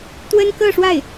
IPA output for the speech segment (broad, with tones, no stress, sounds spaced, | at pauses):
t̪ w ə˥ n k ɤ˥˧ ʂ w a˥˩ ɪ̯